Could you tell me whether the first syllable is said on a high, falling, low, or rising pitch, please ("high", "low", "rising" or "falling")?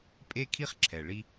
high